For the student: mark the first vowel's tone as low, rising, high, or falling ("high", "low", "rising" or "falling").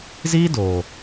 high